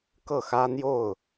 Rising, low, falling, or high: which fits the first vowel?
falling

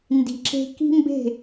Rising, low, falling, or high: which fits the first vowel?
low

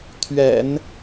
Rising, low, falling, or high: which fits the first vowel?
low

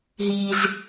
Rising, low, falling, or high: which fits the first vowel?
low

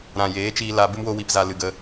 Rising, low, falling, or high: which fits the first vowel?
low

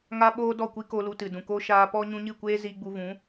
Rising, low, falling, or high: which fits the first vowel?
high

